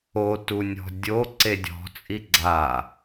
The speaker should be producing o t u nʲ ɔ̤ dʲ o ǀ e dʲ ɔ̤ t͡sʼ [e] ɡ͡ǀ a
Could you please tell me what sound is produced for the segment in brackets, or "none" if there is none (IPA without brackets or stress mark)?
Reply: i